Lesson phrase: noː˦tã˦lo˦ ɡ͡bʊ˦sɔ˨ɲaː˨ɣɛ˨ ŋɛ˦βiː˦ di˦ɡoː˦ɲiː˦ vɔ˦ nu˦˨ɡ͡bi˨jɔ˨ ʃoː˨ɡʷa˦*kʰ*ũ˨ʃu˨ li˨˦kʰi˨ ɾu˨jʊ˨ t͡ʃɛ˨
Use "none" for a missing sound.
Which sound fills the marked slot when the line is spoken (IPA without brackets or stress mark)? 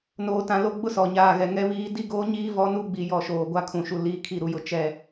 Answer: kʰ